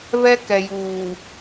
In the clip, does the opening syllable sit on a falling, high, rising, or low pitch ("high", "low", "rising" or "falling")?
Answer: high